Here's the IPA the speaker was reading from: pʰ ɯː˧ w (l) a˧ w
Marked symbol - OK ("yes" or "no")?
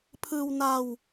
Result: no